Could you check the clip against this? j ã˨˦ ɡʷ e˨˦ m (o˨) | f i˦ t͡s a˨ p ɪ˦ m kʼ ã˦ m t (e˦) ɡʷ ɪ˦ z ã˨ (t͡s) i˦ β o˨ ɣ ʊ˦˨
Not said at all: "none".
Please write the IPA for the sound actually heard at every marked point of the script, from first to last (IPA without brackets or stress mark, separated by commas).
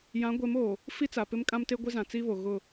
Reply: oː˨, e˦, t͡s